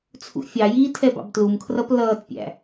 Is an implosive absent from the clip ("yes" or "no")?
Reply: yes